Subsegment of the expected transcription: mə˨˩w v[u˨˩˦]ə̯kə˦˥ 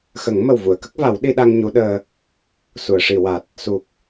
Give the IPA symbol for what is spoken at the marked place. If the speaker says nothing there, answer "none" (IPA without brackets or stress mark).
u˨˩˨